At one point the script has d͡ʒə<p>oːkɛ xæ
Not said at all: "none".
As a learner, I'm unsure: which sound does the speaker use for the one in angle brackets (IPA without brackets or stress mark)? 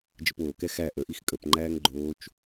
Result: p